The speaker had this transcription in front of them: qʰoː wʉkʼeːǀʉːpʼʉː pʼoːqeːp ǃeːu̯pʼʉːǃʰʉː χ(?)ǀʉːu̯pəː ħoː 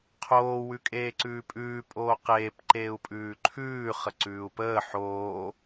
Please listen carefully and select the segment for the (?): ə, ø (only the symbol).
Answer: ə